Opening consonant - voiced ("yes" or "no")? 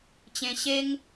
no